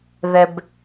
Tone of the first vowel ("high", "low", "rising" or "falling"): low